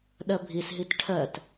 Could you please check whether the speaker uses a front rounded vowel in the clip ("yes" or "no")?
no